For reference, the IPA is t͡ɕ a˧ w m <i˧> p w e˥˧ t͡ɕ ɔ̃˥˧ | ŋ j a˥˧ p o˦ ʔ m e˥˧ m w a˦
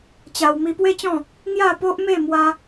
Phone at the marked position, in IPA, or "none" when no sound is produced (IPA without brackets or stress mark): i˧